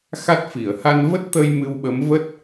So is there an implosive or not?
yes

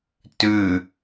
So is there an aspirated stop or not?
no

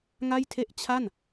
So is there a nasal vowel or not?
no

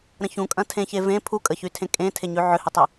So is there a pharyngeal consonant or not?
yes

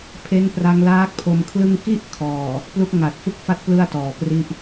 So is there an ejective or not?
no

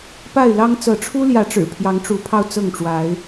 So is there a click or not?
no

